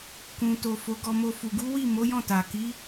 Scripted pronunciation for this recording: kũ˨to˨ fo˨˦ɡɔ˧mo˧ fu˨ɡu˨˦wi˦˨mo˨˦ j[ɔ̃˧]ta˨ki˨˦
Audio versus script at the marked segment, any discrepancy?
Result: yes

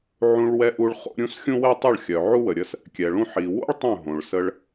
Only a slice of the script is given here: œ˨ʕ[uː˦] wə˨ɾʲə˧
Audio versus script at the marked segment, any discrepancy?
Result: yes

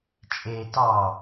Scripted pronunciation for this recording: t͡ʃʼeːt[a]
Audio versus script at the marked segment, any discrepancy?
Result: yes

